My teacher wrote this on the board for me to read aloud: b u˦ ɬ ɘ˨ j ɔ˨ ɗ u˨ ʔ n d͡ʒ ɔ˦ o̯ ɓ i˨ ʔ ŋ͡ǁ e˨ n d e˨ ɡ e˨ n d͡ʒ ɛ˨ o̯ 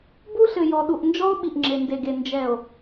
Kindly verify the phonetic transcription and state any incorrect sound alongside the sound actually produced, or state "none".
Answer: none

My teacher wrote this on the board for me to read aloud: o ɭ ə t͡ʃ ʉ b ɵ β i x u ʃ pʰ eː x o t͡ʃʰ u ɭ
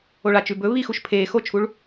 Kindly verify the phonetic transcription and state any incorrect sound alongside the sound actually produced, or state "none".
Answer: ə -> a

